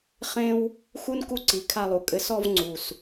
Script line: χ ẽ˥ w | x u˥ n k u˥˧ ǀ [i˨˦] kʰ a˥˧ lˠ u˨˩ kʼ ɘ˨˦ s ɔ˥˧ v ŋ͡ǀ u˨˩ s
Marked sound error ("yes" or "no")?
no